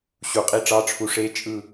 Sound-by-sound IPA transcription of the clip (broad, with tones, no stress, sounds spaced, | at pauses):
ɕ u˨˩˦ qʼ i˧˥ ʈ͡ʂ ɑ˧˥˧ ʈ͡ʂʰ u˧˥ ʂ e˧˥ t͡ʃʼ ɯ˦˨